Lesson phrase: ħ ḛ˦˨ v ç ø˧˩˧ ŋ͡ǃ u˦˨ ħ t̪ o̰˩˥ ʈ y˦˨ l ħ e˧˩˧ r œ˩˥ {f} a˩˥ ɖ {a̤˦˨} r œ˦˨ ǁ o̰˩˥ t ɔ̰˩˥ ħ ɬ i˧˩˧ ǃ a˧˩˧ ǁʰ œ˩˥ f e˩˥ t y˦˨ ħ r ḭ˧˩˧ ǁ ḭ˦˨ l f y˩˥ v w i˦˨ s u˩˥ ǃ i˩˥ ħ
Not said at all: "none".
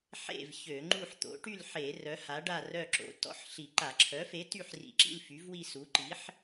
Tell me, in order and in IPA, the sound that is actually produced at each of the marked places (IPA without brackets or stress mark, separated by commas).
h, a˦˨